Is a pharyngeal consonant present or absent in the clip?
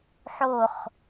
present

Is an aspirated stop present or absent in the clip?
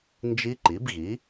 absent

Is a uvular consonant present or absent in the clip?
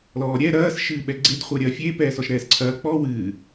present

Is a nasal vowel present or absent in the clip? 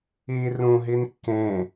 present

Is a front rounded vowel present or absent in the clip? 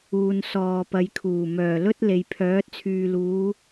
present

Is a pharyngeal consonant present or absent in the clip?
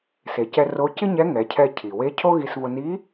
absent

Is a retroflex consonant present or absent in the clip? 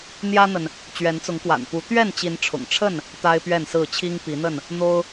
present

